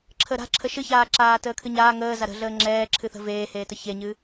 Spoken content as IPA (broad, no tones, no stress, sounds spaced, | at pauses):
ǁʰ ə ɾ a̤ ǁʰ ə ʃ ɨ ç aː ǁ aː t əː kʰ ɨ ɲ aː ŋ əː z a ɾ ə̤ ɮ əː ŋ͡ǁ ɛː ǁʰ ɨ θ ə̤ v eː h eː t ə ç e ɲ ɨ